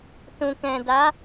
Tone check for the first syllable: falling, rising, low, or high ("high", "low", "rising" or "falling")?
low